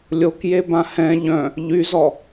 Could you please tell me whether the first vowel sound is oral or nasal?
oral